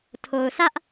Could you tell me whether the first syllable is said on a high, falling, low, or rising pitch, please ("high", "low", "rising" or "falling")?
low